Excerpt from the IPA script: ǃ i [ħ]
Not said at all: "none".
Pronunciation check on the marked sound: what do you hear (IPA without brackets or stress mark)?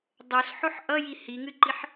ħ